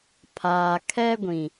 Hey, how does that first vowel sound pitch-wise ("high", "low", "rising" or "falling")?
low